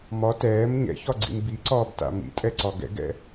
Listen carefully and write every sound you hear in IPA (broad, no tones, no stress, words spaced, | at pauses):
mɒ tɛːm ɲɛ̰çɒɡ͡ǀḭm biǀɒːbta̰ mḭtʼɛǀɒ ɡɛ̰ɡɛ̰